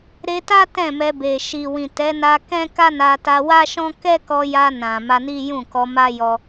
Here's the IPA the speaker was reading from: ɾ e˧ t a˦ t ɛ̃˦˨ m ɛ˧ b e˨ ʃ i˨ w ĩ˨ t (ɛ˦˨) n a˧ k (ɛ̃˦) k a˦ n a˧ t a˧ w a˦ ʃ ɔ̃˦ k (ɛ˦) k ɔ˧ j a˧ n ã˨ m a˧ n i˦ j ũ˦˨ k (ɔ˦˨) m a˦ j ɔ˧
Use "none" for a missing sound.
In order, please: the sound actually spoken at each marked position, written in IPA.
ɛ˨˦, ɛ̃˦, ɛ˦, ɔ˧

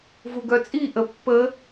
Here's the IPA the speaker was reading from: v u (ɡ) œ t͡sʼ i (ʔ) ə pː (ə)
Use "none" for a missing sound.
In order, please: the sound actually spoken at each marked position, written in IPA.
ɡ, ʔ, ə

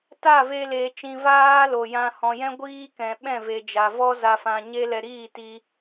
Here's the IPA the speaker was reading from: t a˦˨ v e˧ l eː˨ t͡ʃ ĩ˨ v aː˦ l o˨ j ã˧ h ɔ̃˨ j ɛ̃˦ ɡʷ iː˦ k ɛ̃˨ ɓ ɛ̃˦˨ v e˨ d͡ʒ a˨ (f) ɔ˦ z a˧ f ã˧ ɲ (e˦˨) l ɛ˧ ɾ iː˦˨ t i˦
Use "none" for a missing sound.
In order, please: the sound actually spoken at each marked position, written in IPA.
v, e˦

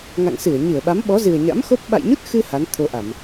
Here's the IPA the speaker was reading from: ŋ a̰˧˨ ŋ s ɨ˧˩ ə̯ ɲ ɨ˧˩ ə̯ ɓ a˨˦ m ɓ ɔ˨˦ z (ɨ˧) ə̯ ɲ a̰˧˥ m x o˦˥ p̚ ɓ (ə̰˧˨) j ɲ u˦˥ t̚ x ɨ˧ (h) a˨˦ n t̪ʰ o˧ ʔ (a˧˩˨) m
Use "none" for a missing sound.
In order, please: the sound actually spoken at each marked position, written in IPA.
ɨ˨˩, a̰˧˨, h, a˧˩˨

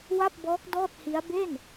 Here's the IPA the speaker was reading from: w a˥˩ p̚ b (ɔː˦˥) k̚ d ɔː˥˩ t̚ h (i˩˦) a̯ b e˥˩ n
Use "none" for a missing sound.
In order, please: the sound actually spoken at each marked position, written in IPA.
ɔː˦˥, i˦˥

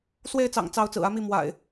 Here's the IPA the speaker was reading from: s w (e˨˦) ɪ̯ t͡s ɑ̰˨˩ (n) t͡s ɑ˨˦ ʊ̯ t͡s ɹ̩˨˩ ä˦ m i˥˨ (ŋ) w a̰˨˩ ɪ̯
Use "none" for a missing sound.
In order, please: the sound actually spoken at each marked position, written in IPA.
e˥˨, ŋ, m

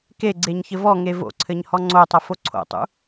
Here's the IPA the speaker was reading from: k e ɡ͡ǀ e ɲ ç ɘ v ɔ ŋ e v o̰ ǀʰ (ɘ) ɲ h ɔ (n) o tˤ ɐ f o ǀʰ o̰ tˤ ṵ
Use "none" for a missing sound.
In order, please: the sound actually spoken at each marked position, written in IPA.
ɘ, ŋ͡ǀ

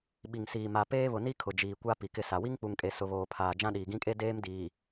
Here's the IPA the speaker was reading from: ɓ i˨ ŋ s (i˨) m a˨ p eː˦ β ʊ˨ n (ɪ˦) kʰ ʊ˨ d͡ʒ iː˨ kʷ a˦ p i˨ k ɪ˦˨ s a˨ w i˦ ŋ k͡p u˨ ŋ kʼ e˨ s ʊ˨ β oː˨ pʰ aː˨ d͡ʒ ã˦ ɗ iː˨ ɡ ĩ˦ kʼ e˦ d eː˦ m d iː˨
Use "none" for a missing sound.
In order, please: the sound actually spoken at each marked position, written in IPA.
iː˨, i˦

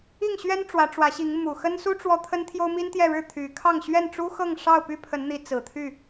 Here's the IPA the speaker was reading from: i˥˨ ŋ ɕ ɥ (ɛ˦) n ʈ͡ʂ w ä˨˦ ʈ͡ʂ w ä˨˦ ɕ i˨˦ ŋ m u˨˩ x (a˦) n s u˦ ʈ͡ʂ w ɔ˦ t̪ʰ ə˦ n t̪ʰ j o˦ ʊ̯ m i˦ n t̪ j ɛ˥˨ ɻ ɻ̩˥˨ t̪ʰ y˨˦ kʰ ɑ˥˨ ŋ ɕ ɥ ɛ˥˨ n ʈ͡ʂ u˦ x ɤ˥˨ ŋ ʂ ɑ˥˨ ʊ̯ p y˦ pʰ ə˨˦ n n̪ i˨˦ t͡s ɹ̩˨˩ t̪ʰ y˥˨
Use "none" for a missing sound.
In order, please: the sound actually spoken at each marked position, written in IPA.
ɛ˦, ə˦

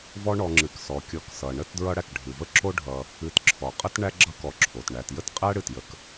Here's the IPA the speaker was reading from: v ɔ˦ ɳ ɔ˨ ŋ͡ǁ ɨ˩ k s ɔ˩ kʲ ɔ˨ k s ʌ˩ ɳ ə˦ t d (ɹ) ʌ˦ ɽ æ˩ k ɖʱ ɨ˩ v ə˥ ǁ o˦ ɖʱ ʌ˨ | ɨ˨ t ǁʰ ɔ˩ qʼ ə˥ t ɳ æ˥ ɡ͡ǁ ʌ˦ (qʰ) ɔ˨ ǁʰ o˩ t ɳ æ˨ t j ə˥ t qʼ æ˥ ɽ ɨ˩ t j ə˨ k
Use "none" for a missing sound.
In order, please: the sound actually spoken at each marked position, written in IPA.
ɹ, k

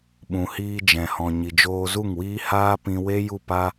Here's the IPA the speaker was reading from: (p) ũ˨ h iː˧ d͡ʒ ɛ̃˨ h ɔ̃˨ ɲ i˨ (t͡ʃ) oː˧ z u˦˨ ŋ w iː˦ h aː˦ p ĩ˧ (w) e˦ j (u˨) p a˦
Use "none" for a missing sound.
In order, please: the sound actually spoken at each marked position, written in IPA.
ɓ, d͡ʒ, w, u˦˨

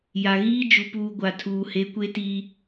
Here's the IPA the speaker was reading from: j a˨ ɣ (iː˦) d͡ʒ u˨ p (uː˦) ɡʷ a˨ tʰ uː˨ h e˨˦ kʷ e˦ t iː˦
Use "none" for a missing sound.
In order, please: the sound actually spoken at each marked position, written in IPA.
iː˦, uː˨

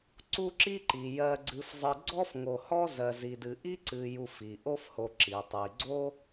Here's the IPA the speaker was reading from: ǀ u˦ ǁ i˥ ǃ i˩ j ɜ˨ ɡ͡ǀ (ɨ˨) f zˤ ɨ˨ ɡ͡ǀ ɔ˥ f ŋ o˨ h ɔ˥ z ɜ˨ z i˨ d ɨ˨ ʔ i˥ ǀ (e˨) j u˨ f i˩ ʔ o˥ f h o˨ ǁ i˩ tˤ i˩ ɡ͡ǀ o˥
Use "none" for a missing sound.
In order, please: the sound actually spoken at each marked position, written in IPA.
ɨ˨, ɨ˨

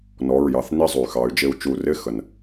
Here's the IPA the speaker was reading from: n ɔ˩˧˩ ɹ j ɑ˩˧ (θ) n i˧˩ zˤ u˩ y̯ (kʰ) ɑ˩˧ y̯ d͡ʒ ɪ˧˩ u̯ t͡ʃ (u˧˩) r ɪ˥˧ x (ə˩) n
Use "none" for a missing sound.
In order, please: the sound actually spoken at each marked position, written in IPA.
θ, x, u˧˩, ə˩

